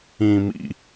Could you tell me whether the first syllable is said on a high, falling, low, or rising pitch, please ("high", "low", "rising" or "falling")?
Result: low